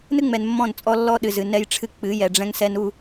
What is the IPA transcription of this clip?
n ɨ˦ ŋ͡m ɛ˨ n mː ɔ̃˦˨ n t͡sʼ ɔ˦ lː ɔ˦ ɗ ɨ˨ z ɨ˨ n ɛ˦ j ʈ͡ʂʰ ɨ˦ k͡p ɨ˨˦ j ɛ˨ ɖ͡ʐ ɛ̃˦ ŋ s ɛ˦ n u˦˨

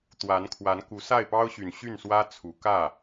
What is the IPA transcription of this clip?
t̪ w a˧˥ n kʰ w a˧˥ n k u˧˥ s a˥˩ ɪ̯ p ɑ˥ ʊ̯ ɕ y˨˩ n ɕ y˥˩ n s w ä˥ t͡sʰ u˨˩ k ä˥˩

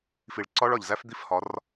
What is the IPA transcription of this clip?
f i˨ ɭ ǀ ɒ˦ ɭ ɒ˨ ʎ z æ˦ f d̪ i˦ f h ɒ˨˦ r

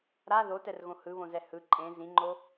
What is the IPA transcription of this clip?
ɾ a ð o t ɛ r ɣ õ h ɯ β õ z ɛ h ɯ ǃʼ ẽ z ĩ ŋ͡ǃ o

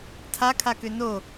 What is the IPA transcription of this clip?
tʰ a kʰ a k ʏ n o

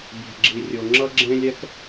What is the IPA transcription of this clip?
bʲ ɛ̤˨ ɡ͡ǁ i˨ rʲ o˨ ŋ͡ǁ ʌ˦ ɡ͡ǁ ẽ˦ lʲ ɛ˦ k

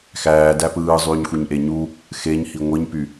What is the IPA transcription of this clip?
x æː d æ p ɯː zˤ yː ɲ xʷ i ɲ ʔ e ɲ u | x e ɲ h i ŋʷ i ɲ p y

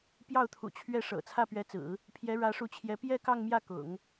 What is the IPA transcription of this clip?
p j ɑ˥˩ ʊ̯ t̪ʰ ṵ˨˩ t͡ɕʰ ɥ ɛ˥˩ ʂ ɤ̰˨˩ t͡sʰ ä˥˩ p ɥ ɛ˧˥ t͡s ɹ̩˨˩˦ | pʰ j ɛ˧˥ ɻ ä˧˥ ʂ u˧˥ t͡ɕʰ j ɛ˧˥ p j ɛ˥˧ k ɑ˥˧ ŋ m j ä˥˩ k ʊ̰˨˩˦ ŋ

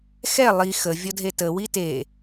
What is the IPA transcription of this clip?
x ɛ lˠ i x ə vʲ ɔ dʱ e t ə w i t e

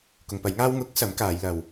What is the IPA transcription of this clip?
k ʊ˨˧ ŋ p ɐ˨˥ j ŋ aː˥ w ŋ ʊ˨˥ k̚ s ɐ˨˥ m k aː˨˧ j l ɐ˨ w

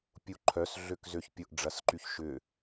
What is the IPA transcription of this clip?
pʲ u ǃʰ œ s ɮ ø k z ø ç pʲ ʊ ʔ ɖ͡ʐ ɐ s ǃ y ç ʃ ʏː

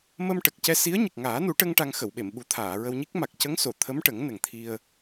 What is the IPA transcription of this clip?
m ə˧ m ʈ ə˨˩ k̚ c ɛ˧ s i˧˥ ə̯ ɲ ə˨˩ k̚ ŋ aː˨˩˦ n u˨˩˦ ʈ ə˧ ŋ ʈ a˧ ŋ x ə˨˩˨ w ɓ e˨˩˨ m ɓ u˨˩˦ t̪ʰ aː˨˩˨ ɹ ə˧ w ɲ i˦˥ k̚ m a˨˩ k̚ c ə˧˥ ŋ s o˨˩˨ t̪ʰ ə˧˥ m ʈ ə˨˩˦ ŋ n ə˨˩ ŋ t̪ʰ i˧ ə̯

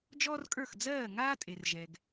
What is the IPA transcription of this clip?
d͡ʒ ɔː˥ r kʼ ə˞˥˩ x d͡z ɜː˥˩ ŋ aː˥ tʼ e˩ r ʒ ɛ˩ ɡ

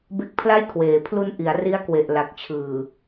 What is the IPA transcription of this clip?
b e˦˥ k̚ pʰ l a˥˩ j kʰ w eː˨˩ pʰ l u˧ n ʔ i˩˦ a̯ r i˦˥ a̯ k w e˨˩ ʔ l a˨˩ k̚ t͡ɕʰ ɯː˨˩

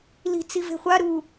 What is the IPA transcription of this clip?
l i̤ t͡s i v e̤ χʷ a ɾ uː

